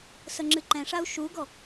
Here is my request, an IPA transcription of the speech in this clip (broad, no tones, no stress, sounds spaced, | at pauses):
s ə ŋ͡ǁ ɨ ǃ ɛ̃ ʂ a u̯ ʃ u ɡ ɔ